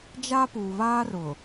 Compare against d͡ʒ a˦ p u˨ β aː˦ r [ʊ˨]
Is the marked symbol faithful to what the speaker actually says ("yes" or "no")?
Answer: yes